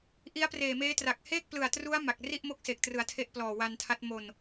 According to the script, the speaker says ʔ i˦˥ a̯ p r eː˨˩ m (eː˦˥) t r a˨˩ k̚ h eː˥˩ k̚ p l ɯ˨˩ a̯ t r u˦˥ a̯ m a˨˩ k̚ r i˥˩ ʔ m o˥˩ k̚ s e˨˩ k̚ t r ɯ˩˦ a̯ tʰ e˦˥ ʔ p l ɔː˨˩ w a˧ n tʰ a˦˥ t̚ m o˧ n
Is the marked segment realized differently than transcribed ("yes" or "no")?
no